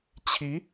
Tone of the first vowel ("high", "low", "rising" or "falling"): rising